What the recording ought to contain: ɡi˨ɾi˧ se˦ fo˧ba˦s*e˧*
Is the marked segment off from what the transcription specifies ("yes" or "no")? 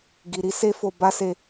no